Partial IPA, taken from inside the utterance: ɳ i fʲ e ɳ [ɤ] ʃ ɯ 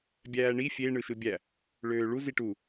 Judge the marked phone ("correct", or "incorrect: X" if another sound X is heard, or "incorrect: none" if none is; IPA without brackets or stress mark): incorrect: ɯ